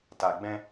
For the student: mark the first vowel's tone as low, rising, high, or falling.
low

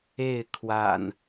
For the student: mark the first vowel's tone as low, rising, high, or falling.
falling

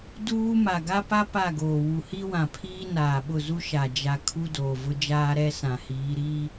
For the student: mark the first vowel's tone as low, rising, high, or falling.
high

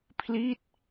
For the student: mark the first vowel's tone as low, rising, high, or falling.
falling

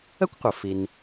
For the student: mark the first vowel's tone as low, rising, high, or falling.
high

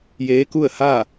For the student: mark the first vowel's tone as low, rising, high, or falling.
rising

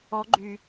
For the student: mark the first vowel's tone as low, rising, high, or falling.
rising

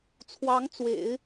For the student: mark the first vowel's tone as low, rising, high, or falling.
rising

